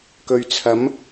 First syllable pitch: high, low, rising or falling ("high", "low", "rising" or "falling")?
low